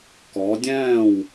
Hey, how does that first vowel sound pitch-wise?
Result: rising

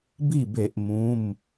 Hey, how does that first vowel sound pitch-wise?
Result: falling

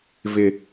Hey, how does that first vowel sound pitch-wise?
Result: low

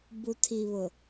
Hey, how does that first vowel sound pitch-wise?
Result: low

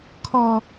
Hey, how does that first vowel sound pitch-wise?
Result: high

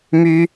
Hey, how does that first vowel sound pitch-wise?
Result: high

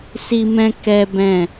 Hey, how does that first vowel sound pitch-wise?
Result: high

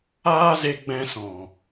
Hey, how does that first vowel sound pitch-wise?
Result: high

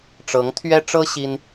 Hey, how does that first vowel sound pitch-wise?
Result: rising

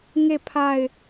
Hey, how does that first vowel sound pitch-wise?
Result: falling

